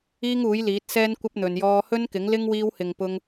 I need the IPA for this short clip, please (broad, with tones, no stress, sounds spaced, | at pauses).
iː˥ ŋ uː˨˥ j l iː˨˥ t̚ s ɛː˥ n kʷ ɐ˥ p̚ n̪ ɵ˨ n j ɔː˧ h ɵ˥ n k ɪ˨˥ ŋ l ɪ˥ ŋ w iː˧ w h ɪ˨ ŋ p ʊ˧ ŋ